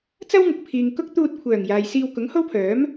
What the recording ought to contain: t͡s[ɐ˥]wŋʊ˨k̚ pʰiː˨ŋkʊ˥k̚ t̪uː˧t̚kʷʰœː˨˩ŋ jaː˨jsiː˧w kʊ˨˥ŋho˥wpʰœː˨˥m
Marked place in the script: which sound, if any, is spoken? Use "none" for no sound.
ɐ˥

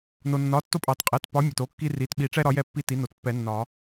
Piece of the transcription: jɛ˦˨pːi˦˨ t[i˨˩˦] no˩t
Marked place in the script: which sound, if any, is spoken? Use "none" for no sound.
i˨˥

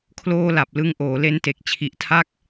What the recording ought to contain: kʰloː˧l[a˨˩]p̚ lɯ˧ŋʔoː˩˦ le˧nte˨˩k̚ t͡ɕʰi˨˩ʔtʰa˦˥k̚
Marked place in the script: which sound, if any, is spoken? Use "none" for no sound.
a˨˩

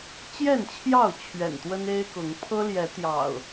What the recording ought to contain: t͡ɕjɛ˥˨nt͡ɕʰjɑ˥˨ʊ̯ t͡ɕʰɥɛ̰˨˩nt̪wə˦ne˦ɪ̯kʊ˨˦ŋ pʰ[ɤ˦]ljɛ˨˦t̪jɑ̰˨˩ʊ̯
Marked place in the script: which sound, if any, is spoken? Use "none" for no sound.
ɤ˦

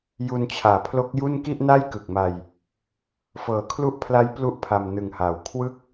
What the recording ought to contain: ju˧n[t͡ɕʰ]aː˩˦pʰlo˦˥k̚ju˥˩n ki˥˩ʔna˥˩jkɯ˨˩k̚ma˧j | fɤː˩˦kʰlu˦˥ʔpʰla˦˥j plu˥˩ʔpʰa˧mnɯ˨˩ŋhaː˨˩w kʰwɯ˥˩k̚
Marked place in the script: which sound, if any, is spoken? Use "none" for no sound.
t͡ɕʰ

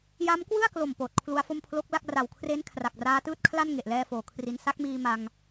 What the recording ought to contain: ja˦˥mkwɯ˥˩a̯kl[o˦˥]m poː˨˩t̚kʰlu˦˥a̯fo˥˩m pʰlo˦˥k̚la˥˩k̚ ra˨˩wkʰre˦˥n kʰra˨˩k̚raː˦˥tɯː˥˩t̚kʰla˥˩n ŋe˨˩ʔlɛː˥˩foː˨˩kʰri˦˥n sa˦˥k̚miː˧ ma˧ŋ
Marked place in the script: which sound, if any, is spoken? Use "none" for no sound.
o˨˩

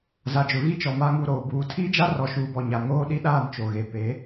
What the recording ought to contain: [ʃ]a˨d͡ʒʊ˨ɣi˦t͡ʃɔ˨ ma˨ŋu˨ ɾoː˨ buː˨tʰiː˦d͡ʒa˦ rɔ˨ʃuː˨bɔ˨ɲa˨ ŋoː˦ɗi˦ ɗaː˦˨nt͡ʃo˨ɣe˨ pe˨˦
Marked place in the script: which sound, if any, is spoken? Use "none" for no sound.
z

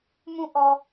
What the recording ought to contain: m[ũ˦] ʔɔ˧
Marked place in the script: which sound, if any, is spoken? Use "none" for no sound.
ũ˦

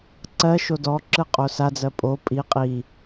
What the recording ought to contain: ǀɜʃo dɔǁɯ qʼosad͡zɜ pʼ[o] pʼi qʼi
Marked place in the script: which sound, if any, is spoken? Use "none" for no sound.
o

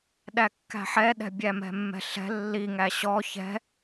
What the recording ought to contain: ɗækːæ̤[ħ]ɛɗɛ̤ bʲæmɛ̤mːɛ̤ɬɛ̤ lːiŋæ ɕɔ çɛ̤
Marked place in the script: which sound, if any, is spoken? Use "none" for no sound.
ħ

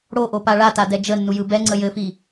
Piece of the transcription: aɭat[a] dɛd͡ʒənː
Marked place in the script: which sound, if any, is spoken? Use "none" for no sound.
a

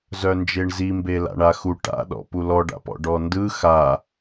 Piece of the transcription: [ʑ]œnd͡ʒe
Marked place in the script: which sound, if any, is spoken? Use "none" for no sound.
z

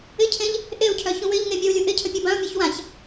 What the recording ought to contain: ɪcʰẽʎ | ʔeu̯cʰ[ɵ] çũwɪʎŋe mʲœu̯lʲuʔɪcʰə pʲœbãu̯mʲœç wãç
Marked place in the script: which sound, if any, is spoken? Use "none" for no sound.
œ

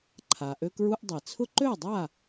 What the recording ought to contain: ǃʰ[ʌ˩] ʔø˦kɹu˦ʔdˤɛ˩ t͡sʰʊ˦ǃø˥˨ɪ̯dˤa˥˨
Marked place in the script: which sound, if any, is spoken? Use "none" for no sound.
a˩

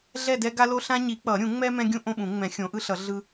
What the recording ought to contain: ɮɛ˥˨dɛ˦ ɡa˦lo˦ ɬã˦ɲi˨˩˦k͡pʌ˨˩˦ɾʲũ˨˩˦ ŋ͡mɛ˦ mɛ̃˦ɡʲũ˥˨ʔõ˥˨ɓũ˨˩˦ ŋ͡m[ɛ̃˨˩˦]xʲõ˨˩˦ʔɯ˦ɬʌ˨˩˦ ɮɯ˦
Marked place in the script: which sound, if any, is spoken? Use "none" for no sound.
ɛ̃˨˩˦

